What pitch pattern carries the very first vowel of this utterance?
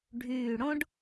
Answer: low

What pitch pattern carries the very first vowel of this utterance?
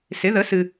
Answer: rising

